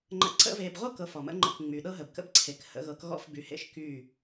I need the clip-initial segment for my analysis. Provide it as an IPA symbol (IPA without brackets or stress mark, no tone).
ŋ͡ǃ